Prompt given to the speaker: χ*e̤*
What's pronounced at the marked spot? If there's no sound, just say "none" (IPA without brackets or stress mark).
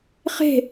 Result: e̤